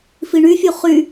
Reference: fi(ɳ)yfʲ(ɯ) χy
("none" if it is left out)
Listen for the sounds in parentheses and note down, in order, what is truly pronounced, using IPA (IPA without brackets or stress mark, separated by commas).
ɳ, u